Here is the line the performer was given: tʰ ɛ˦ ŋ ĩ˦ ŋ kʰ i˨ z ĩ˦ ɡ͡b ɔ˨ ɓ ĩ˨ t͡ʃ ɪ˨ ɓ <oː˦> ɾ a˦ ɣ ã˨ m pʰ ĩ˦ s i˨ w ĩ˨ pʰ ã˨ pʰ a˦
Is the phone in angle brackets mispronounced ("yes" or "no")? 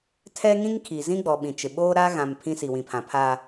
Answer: no